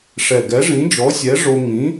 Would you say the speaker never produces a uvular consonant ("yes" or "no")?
yes